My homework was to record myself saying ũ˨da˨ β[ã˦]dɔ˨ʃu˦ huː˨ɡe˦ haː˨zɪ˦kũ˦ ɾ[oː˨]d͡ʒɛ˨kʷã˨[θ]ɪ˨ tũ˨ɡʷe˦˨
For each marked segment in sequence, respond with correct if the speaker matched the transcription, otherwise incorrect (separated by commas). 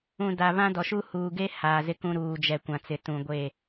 correct, incorrect, incorrect